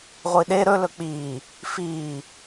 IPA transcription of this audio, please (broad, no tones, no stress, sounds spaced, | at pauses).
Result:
ʁʷ i ɗ e ɾ ɵ l ɵ k͡p iː | f iː